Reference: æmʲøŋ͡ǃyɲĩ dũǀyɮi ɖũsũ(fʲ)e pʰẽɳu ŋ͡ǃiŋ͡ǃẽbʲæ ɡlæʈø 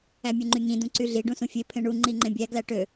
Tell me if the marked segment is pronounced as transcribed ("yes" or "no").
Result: yes